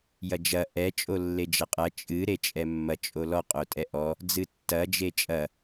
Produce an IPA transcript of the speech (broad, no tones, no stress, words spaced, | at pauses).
jɐd͡ʒɐ ʔɛ t͡ʃʼolːed͡ʒɐqʼɐ t͡ʃʼɨ ɾet͡ʃʼɛmːɐ t͡ʃʼolɔ qʼotʼɛʔɔ | d͡zɨtːɐ d͡ʒet͡ʃʼɐ